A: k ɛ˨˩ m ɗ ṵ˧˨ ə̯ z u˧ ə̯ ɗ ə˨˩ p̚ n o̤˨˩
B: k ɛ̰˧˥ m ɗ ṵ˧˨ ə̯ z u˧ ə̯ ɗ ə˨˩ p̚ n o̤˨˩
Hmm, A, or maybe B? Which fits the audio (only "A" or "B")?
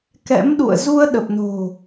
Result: B